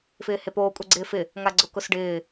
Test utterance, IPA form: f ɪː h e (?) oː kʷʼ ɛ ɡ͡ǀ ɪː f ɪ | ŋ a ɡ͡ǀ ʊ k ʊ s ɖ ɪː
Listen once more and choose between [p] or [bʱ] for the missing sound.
p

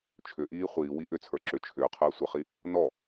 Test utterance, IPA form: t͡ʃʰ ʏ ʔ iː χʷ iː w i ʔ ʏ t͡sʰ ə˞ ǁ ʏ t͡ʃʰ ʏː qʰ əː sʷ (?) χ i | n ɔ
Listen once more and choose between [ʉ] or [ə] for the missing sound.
ə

